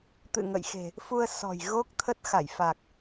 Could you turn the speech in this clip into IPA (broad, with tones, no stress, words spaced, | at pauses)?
t̪ɨ̰˧˨ŋə̰˧˨jxe̤˨˩ | fu˧ə̯sɔ̤˨˩j ɣo˦˥k̚t̪ʰə˦˥t̚ xa˧˩jfa˨˩k̚